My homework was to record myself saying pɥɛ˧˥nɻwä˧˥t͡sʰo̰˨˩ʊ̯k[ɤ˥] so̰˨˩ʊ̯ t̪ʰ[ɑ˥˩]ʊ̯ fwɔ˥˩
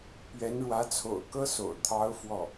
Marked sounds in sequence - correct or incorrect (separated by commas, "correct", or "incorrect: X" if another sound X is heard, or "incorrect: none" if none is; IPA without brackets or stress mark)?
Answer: correct, incorrect: ɑ˧˥